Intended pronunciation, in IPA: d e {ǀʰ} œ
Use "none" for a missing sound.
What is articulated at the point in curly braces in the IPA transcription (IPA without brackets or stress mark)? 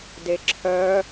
ǁʰ